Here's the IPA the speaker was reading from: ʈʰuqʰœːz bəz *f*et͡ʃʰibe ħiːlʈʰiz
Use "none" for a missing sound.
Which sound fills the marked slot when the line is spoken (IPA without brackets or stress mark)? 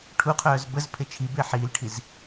pʰ